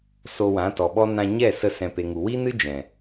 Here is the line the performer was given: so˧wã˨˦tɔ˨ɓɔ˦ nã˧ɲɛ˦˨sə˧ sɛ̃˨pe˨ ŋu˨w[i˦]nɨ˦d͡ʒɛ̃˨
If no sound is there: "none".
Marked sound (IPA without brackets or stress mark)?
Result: i˦